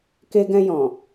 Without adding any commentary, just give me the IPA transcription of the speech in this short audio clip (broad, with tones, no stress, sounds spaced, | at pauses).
k e˧ ɡ ɛ̃˧ j ɔ̃˨